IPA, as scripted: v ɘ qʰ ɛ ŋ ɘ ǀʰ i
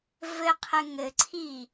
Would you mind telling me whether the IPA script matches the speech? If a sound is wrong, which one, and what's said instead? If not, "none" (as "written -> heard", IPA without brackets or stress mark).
ɛ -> ɘ